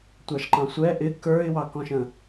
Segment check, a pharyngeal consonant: absent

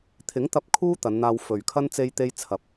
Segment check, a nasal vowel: absent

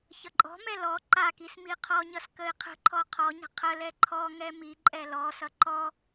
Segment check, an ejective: present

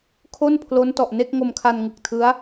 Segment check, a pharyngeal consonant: absent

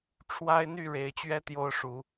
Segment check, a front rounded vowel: present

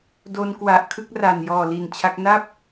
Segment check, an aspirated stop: present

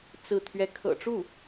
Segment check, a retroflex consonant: present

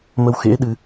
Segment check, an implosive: present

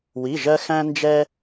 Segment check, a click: absent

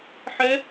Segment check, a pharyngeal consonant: present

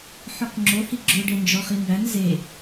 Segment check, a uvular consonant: present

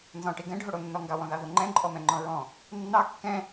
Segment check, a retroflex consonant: present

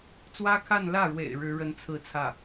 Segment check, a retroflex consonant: present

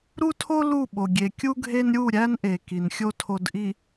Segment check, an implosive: present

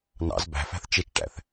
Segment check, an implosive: absent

